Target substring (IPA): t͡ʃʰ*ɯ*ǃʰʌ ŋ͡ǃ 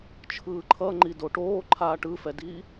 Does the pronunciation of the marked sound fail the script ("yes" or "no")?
yes